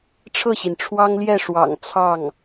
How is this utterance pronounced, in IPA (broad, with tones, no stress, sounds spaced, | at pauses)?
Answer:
ʈ͡ʂʰ ɤ˥˩ ɕ i˩ n ʈ͡ʂʰ w ɑ˥ ŋ l j ɛ˥˩ ʂ w ɑ̰˨˩ ŋ t͡sʰ ɑ˥˩ ŋ